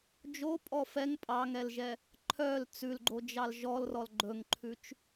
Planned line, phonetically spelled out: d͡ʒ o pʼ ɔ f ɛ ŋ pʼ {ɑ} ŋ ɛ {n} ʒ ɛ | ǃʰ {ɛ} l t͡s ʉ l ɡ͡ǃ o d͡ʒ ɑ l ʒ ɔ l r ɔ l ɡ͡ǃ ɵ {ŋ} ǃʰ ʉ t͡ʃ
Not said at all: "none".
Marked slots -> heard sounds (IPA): ɑ, l, œ, ŋ

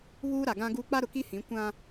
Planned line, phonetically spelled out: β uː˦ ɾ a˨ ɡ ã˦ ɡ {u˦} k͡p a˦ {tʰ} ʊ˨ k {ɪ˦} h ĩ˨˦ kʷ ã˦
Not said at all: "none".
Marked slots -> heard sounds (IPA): u˦, ɾ, i˦

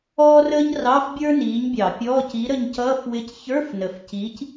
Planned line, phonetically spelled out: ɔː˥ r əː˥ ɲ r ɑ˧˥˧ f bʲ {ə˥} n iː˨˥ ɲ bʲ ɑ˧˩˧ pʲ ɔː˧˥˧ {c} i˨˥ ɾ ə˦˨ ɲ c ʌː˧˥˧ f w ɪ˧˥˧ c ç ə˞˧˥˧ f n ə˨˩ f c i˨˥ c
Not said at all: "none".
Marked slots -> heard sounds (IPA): ə˞˥, c

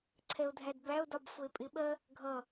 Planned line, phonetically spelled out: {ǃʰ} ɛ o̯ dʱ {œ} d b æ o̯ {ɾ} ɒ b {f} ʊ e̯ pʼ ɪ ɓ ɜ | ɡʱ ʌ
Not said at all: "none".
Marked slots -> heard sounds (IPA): ǀʰ, æ, d, f

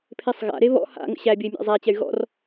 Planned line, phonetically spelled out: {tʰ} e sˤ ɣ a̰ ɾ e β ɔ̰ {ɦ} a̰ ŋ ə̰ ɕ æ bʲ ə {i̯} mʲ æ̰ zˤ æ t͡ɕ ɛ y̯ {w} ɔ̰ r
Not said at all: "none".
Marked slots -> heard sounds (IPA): pʰ, h, i̯, ɣ

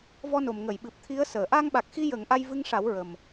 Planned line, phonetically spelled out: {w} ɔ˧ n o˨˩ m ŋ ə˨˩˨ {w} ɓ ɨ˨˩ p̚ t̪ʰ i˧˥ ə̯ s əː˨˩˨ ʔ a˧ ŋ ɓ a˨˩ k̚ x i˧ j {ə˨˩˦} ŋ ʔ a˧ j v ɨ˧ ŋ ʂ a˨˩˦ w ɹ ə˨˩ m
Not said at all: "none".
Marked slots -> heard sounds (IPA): v, j, ə˨˩˦

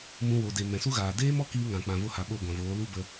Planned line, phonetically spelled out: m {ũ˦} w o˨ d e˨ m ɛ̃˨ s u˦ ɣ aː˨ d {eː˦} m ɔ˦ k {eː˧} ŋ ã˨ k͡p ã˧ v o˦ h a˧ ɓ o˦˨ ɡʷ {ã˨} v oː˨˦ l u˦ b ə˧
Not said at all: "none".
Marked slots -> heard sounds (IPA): ũ˧, eː˦, iː˧, ã˨

